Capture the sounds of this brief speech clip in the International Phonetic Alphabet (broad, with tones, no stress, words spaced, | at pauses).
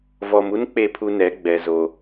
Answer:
vɔ˨m u˦n k͡pe˦˨pʰu˦nɛ˨˦ ɡ͡bɛ˨zo˨